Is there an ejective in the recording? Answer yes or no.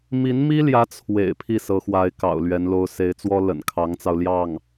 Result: no